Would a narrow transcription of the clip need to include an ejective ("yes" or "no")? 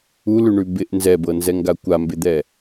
no